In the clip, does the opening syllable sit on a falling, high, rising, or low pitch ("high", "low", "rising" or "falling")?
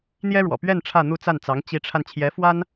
high